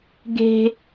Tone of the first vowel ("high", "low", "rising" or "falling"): high